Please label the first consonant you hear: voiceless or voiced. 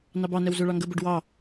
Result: voiced